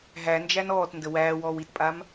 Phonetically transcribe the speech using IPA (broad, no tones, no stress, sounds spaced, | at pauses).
ɦ æ n d͡ʒ æ n ɔː t n d ə w æː w ɔː w i t pʼ a m